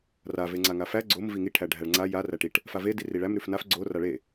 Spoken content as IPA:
r a v e ŋ͡ǀ a ŋ a f æ ɡ͡ǀ o m v i ŋ i ʈʰ æ ɖʱ æ ɭ ŋ͡ǀ a j a r æ ʈ i ʈ | f a v e d i r i ɭ æ m ɾ ʉ f n a f ɡ͡ǀ o r a ɭ e

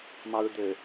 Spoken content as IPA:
m ɑ ɹ d̪ ø

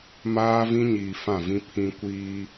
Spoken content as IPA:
m aː˦ v ĩ˦ ɲ iː˨ f ã˦˨ v ĩ˦ pʰ ĩ˦ kʷ iː˦

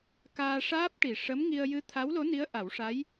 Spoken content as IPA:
k aː˧ ʂ aː˦˥ p̚ ʈ i˨˩ ʂ ə˧˥ m ŋ i˧ ə̯ j ɨ˧˥ t̪ʰ a˧˥ w l o˧˥ n i˧˥ ə̯ ʔ a˨˩˦ w ʂ a˧˥ j

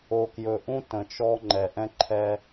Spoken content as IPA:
o˨ k j ɵ˨ ʔ ũ˦ t ə̃˨ t͡ʃ ɔ˦ ŋ͡ǃ ɛ˨ ʔ ɛ̃˦ ǃʰ ɛ˦

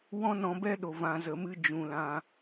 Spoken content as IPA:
w ɔ̃˦ n ɔ̃˧ b ɛ˦ ɗ o˨ v ã˨ z ə˨ m ɨ˧ d͡ʒ ũ˨ l ã˧

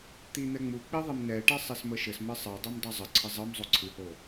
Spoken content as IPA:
t̪ i n̪ ɛ ŋ͡m u k͡p i ðˤ i m n ɛ ʈ e sˤ ɘ s m ə ʃ ɘ s m ɘ sˤ ɤ dˤ e m dˤ u zˤ ə ǀʰ ɘ zˤ ɤ m zˤ o ǀʰ ɨ h o

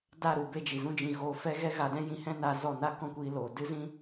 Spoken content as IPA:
d a˦˨ ɾ u˨ b e˧ d͡ʒ i˨ z ũ˦ d͡ʒ ĩ˧ ɣ oː˧ f ɛ˦ ɣ ɛ˦ ɣ a˧ d ɛ̃˦ j ĩ˧ h ɛ̃˦ n aː˧ z ɔ˦˨ n a˦ k ɔ̃˦˨ kʷ iː˧ l oː˨ d ɨ˦ z ĩ˦

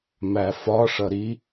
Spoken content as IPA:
m æ f ɒ ʂ ʌ ɾ i

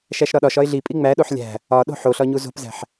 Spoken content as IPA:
ʃ æ ʃ ɾ ɒ ɗ ɒ ʃ ɒ ɪ̯ ɮ i pʼ i ŋ͡m æ ɗ o ħ lʲ æ̤ | ɒ ɗ o̤ ħ o ɬ ɒ ɲ u z o̤ p z æ̤ ħ

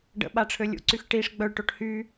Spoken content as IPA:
ɖ ə̰ ɓ a ʈ͡ʂʰ ø lʲ ṵ ǀ y x ʈ i ʂ ɡ͡b œ ɭ ʈ o ʈ h y

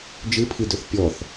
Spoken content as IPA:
d͡ʒ ɯ pʰ i d ɵ θ pʲ ɔ θ

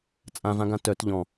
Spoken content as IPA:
t͡sʼ ã v ã ɡ ã t œ t ʎ ɔ̃

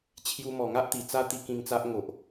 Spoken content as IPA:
t͡ɕʰ j u˧ m ɔ˨˩ ŋ a˦ ʔ t̪ i˨˩ t͡s a˦ t̪ i˧ k ĩ˧ ŋ t͡s a˦ ʔ ŋ o˨ ʔ

